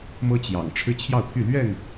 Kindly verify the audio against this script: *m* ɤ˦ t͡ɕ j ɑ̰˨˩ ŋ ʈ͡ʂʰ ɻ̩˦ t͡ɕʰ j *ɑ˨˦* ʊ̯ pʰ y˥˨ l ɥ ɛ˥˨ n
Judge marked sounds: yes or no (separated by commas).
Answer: yes, no